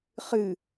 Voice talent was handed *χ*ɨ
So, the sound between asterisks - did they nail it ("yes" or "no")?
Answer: yes